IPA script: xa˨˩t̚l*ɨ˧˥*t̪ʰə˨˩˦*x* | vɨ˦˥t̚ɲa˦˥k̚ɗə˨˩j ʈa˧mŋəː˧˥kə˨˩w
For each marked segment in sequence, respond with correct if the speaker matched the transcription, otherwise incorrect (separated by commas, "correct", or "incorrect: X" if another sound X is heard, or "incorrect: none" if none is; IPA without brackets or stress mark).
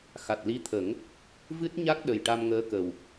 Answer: incorrect: i˧˥, incorrect: ŋ